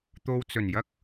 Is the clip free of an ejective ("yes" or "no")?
yes